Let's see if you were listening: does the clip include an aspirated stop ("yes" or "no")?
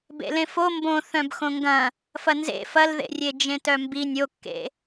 no